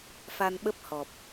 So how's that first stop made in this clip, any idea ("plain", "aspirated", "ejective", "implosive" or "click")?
implosive